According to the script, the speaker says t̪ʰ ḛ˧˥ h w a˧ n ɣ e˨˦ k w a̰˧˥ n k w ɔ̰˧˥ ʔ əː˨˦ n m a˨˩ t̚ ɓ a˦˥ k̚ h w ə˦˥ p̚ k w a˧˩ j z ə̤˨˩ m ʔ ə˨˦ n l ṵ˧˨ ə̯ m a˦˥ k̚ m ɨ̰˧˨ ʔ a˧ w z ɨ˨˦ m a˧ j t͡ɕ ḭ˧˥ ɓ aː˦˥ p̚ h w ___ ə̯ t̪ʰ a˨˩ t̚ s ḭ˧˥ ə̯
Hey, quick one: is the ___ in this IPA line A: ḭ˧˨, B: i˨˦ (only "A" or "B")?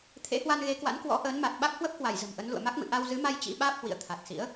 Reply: A